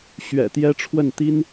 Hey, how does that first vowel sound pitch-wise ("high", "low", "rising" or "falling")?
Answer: low